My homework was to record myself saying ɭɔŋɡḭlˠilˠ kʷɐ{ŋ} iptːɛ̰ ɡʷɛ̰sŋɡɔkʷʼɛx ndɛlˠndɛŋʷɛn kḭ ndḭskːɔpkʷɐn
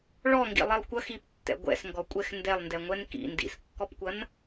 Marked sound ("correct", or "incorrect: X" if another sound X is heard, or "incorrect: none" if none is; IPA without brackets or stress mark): incorrect: x